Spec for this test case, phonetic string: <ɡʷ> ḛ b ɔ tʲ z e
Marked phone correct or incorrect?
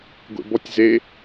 correct